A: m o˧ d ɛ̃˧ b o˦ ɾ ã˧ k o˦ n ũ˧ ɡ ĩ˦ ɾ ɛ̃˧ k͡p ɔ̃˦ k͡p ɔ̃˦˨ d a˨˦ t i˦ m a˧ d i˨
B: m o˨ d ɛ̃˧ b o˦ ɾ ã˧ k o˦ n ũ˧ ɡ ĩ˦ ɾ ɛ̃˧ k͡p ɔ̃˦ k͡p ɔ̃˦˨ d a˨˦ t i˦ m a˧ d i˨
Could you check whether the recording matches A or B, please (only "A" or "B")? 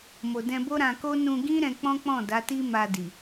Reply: B